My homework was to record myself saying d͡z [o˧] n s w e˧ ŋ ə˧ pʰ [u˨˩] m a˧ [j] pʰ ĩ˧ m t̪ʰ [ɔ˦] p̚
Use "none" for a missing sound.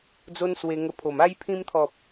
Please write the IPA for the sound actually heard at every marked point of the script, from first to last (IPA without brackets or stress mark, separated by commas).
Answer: o˦, o˨˩, j, ɔ˨